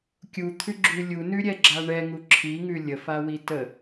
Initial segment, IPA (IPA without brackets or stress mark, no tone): kʲ